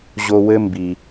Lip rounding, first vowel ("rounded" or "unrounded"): rounded